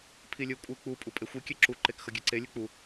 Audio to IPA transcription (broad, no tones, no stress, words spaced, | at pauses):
pʰilʲɯkʷʼɯ k͡pu pʼupʼexʷi kʲeǁu ǃekxʌɡʲeǀe lʲɯk͡pu